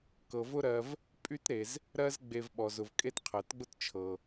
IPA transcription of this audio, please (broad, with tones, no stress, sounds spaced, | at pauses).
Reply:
k ɤ˩ v ʊ˥ ɾ ɜ˨ v | pʼ y˥ t ɾ e˩ z | ɾ ɜ˦ z ɡ͡b e˨ v ɓ ɔ˩ z ʊ˩ v kʼ e˦ t qʰ ɜ˩ t ɡ͡b ʊ˥ t t͡ʃʰ ɤ˩